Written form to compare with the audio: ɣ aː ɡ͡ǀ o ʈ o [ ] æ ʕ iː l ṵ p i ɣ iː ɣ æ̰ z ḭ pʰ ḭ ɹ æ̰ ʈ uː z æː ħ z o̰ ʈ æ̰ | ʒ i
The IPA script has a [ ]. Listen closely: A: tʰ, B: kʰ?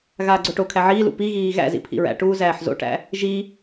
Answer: B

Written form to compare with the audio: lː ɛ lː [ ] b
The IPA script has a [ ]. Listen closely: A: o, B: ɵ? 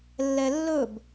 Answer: B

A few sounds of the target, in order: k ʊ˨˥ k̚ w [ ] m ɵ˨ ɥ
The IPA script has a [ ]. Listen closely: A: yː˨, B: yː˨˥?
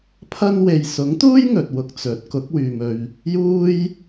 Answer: A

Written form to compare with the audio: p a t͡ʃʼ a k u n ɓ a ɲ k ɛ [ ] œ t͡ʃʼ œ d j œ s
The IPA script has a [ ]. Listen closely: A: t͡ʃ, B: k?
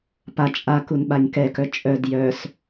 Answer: B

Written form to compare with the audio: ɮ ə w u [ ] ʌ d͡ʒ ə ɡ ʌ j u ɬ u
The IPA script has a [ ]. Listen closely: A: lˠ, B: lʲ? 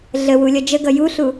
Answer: B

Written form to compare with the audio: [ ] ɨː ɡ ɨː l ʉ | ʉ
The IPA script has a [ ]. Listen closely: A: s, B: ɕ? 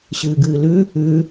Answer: B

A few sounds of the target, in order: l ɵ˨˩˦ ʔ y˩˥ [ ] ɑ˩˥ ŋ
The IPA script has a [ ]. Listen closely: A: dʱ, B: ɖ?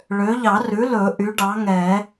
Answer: B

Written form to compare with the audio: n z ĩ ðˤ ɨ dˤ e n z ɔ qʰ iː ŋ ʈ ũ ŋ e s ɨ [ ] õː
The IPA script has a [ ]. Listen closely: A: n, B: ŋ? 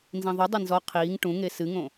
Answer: B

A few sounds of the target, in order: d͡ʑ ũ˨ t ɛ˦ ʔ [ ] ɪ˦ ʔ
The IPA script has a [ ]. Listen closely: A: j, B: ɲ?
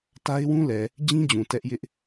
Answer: A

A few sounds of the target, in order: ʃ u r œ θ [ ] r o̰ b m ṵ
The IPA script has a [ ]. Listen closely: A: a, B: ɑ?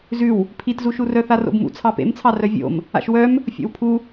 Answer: A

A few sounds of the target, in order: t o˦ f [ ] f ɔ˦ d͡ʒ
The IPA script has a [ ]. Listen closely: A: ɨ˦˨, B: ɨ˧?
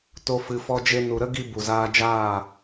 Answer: B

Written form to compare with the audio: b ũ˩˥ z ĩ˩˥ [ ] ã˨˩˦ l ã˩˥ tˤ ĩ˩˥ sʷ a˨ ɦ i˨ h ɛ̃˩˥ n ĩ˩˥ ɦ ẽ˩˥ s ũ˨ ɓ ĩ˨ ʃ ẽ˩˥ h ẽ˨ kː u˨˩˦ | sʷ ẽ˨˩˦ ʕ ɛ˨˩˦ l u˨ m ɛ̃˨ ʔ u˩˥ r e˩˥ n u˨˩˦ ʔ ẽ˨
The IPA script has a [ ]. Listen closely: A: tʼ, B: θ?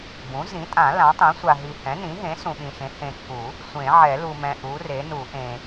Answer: A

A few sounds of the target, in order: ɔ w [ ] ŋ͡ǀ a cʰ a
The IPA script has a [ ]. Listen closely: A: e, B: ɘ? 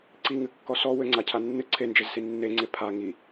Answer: B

